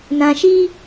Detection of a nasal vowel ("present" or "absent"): present